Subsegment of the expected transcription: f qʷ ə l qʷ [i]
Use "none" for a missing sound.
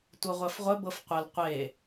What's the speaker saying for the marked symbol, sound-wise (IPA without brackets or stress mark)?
e